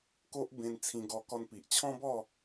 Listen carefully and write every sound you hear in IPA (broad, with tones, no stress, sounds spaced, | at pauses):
k o˦ ʔ b ẽ˧ n t͡sʰ ĩ˧ ɡ ɔ˧ k ɔ˧ n p i˨ ʔ t͡ɕʰ ɔ̃˦ b ɔ˥˧